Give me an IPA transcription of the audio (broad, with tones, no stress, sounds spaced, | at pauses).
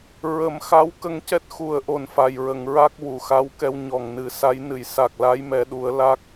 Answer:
ɹ ə˨˩˦ m x a˧˥ w k ə˧ ŋ c ɛ˦˥ t̚ x u˨˩ ə̯ ʔ o˨˩ n f a˨˩ j ɹ ə˨˩˨ ŋ ɹ a˦˥ k̚ w u˨˩˨ x a˧˥ w k ɛ˧ w ɲ ɔ˨˩ ŋ n ɨ˨˩˦ s a˧˥ j n ɨ˨˩˨ j s a˨˩ k̚ l a˧˥ j m ɛ˨˩˦ ɗ u˨˩˦ ə̯ l a˦˥ k̚